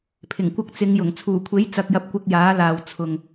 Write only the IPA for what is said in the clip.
pʰ ɪ˨˩ ŋ kʷ ɐ˧ k̚ t͡s ɪ˨˧ ŋ j ʊ˨˩ ŋ t͡sʰ uː˨˩ kʷʰ e˨˥ j t͡s ɐ˨ k̚ j ɐ˨ p̚ kʷ ɪ˧ k̚ j aː˨˥ l aː˨ w t͡sʰ ʊ˨ ŋ

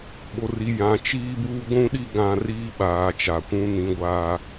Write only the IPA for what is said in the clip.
ɓ o˨ r i˨ j ã˨ t͡ʃ iː˦ b uː˦ ɡʷ ũ˦ ɗ i˦ ɡ ã˦ r iː˦ ɓ aː˨ t͡ʃ a˨ kʷ ũ˦ n ĩ˦ ɡʷ aː˦

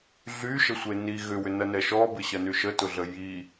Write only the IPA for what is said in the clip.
ɮ y ʃ ə sʷ e n i ɣ ʏ w ʏ n ɐ n ɛ ʃ ɔ b ɪ ɕ ɐ n y ʃ ə t ʊ ɮ ə j i

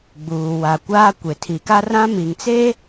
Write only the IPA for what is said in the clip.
ɡ͡b uː˨ w a˨ kʷ aː˦ kʷ e˨ tʰ i˨ k a˦ r ã˦ m i˨ ŋ t͡s e˦

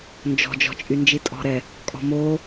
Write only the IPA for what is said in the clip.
n d͡ʒ ɔ̤ d͡ʒ ɔ̤ t͡ʃʼ y n d͡ʒ i tʼ ɔ̤ ɾ ɛ | kʼ ɔ̤ m o

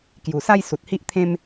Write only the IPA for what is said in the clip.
k j u˨˩ s a˦ j s u˨ t̚ h i˦ ʔ t̪ʰ ẽ˦ m

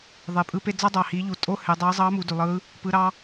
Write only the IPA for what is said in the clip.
ðˤ e˩ pʼ ɯ˧ p e˧ d͡z ɑ˥ dˤ ɑ˩ h i˩˧ ʎ u˩ tʼ o˥ h e˩˧ dˤ ɑ˧˥ zˤ ɑ˧˥ m u˩˧ d y˩ lˠ ɯ˧˥ | p ɯ˩˧ ɾ ɑ˧

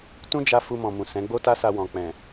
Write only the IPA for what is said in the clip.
t ũ˦ d͡ʒ a˦ f u˧ m ɔ̃˨ m ũ˨ s ɛ̃˨˦ ɡ͡b o˦ t a˦ s a˧ w ɔ̃˨ k͡p ɛ̃˨

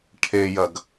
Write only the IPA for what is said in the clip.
ʈʰ e j ɐ ɡ

